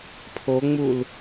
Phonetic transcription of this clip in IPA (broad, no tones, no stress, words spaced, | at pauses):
pʰoŋ͡mul